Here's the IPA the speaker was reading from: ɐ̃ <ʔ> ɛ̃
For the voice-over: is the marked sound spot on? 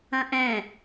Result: yes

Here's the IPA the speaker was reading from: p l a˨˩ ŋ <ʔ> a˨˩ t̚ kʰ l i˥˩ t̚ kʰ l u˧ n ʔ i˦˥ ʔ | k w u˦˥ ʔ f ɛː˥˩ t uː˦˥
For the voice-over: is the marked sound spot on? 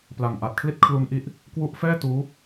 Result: yes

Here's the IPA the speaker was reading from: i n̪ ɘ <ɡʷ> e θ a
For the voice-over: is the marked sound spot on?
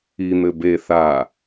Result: no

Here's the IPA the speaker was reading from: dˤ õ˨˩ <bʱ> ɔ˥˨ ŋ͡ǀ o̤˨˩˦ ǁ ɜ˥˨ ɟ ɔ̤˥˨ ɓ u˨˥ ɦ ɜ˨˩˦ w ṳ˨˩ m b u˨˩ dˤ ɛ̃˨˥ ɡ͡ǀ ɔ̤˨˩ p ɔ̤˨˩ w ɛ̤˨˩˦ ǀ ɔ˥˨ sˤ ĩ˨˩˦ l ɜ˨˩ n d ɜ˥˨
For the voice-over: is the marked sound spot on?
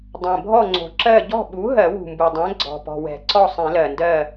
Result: yes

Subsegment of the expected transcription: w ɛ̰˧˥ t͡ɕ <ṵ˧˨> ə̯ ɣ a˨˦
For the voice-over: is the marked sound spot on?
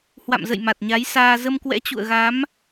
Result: yes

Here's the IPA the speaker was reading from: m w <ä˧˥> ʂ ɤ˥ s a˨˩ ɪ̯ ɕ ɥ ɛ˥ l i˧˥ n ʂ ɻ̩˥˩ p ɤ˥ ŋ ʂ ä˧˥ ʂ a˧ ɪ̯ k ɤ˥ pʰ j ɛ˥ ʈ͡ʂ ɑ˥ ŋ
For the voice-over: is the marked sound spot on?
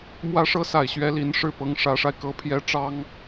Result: no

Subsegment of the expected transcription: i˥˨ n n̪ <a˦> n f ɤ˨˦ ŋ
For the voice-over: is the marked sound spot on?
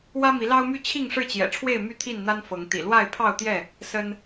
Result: yes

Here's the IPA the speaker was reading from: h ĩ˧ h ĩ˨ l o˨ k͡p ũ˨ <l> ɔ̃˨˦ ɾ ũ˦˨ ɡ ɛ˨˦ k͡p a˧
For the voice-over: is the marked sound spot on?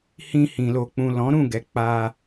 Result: yes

